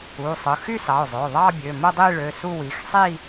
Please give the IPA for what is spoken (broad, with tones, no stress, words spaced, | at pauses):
u˩˧˩ sˤɯ˩˧˩ xy˥˧sɑ˩˧˩ʊ̯zˤø˩˧˩ʊ̯ ðˤɑ˥˧bʲø˩˧˩mo˥˧ dˤi˥˧ɭø˩˧˩su˥˧wi˩˧˩x sˤi˥˧